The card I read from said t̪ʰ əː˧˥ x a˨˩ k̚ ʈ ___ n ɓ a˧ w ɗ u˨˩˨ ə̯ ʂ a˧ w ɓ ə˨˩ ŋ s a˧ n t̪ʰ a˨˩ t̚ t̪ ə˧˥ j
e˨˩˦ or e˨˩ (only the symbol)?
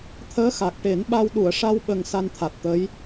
e˨˩˦